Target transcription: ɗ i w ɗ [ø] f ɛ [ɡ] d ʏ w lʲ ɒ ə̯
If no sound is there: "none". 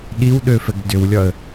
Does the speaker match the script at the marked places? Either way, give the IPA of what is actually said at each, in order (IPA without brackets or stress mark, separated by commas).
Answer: ø, ɡ